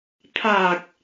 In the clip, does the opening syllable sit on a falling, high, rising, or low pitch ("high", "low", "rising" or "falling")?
low